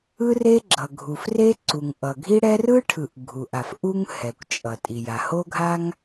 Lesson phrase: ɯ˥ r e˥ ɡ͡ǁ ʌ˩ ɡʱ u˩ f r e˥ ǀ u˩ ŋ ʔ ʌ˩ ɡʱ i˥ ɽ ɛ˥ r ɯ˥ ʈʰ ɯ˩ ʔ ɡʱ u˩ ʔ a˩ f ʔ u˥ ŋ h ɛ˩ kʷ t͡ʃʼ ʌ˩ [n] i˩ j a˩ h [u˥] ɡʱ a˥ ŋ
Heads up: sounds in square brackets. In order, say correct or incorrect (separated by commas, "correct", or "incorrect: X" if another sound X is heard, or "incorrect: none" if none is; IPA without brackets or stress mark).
incorrect: tʼ, incorrect: o˥